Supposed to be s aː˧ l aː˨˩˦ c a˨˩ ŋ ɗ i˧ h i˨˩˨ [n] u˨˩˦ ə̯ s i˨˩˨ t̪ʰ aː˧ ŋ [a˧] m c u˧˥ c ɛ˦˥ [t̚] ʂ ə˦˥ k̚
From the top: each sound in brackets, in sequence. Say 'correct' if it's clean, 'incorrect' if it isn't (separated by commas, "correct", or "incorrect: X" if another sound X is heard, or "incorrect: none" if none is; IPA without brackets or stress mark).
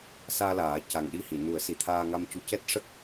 correct, correct, correct